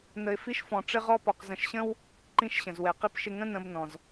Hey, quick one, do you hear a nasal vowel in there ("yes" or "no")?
yes